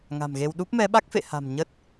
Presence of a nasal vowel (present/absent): absent